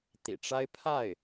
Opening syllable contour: low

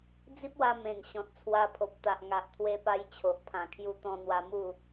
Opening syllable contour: high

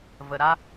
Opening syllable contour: low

